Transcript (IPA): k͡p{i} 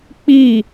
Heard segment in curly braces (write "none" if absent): i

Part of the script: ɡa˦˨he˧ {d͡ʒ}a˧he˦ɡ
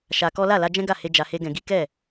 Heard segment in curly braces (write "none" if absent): d͡ʒ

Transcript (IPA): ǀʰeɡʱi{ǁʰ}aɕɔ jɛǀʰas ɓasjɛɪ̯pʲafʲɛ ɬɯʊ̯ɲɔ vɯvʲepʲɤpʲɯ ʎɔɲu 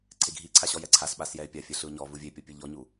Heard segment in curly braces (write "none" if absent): ǀʰ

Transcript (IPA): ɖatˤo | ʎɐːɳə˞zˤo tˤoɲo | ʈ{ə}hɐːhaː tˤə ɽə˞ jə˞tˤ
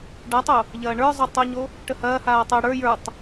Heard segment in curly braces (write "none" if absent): ə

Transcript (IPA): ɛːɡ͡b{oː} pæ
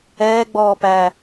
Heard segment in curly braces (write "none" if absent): ɔː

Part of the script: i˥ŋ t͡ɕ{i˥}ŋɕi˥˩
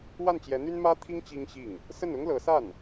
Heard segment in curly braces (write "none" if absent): i˥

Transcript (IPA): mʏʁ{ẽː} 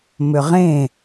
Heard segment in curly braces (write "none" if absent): ẽ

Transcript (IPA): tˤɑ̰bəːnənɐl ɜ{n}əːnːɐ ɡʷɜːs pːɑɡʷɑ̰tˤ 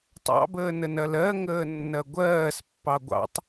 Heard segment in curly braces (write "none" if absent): ŋ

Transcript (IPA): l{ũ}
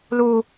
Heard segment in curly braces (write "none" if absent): u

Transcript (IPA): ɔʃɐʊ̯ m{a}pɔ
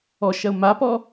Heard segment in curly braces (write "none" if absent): a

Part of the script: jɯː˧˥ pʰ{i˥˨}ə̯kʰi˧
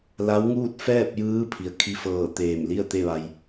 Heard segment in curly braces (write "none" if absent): i˩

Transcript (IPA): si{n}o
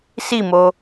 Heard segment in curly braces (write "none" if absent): m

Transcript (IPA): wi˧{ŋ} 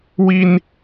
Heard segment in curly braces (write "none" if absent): n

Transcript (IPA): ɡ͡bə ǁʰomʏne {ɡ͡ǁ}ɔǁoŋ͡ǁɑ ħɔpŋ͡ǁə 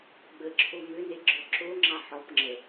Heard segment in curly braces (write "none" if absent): ɡ͡ǁ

